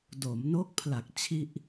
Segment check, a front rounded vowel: absent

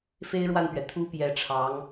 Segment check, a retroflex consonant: present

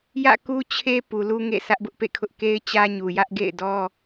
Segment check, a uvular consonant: absent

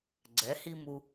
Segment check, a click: present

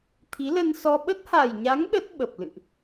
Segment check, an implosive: present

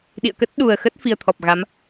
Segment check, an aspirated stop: present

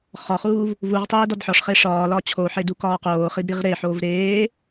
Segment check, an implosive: absent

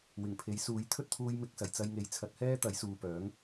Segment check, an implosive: absent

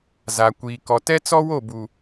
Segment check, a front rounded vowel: absent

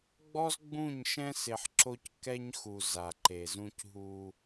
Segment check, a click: present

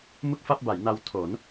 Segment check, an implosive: absent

